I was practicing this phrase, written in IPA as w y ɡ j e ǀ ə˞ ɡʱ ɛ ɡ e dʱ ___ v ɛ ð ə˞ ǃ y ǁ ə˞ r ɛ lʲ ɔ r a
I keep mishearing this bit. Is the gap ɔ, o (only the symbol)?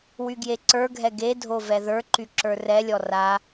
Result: o